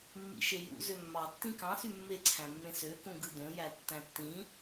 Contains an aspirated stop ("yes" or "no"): yes